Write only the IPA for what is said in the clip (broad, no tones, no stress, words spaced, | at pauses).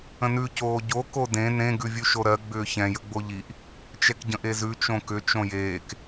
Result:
ə̃nʉ coːɟo kodẽ nẽ ɡʉvʲʉʃoɾɜ ɡ͡bʏːçɛ̃j əɡ͡boʎiʔ | t͡ʃɛkɟə̃ʔezʉ t͡ʃõkʏ t͡ʃõjeːk